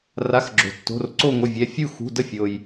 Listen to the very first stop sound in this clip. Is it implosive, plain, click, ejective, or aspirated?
click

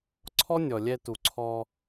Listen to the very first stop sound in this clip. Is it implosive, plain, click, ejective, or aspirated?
click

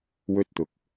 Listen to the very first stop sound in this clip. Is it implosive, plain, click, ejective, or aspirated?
plain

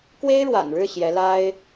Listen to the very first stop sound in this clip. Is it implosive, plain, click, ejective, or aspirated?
plain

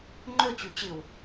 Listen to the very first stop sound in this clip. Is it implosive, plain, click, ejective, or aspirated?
click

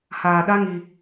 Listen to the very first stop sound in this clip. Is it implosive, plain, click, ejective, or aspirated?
implosive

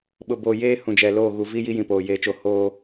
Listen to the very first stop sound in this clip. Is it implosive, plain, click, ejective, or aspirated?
implosive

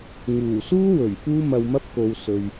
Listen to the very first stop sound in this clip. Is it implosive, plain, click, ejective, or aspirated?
plain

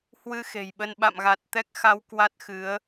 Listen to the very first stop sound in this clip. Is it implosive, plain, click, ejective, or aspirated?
implosive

